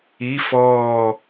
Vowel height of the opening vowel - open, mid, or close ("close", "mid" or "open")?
close